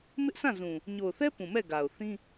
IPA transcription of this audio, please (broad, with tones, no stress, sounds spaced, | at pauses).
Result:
m ɪ˦ ʔ sʰ ã˦˨ z ũ˨ | ɲ o˨ ʊ̯ θ ɛ˦ p ũ˨ m ɛ˦˨ ɡ a˨ ʊ̯ θ ĩ˦